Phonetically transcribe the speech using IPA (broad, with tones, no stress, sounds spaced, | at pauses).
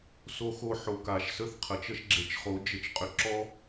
s o˧ x o˧ ħ o˨ k a˨ ʃ s ə˦ θ qʰ ə˨ t͡ʃ ə˦ ʃ ɡ͡ǁ e˨ t͡ʃ χ o˨˦ d͡ʒ ə˧ t͡ʃ qʼ ʏ˧ ǁ ɔ˦